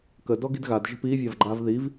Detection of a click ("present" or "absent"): present